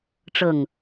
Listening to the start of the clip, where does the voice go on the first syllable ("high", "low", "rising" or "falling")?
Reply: low